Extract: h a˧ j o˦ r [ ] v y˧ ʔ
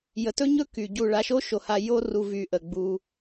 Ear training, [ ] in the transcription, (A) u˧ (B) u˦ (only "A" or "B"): A